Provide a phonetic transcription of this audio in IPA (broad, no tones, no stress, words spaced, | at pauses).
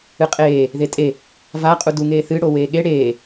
ɨqʼeː | ðetʼe | va qʼuduŋeː θɨɽo weːɠe ɽeː